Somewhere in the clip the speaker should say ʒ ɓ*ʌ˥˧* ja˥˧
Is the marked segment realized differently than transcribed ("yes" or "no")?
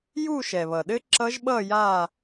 no